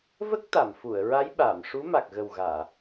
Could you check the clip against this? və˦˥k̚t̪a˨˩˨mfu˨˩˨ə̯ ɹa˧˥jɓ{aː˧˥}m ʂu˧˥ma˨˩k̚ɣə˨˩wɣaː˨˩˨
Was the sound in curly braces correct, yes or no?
no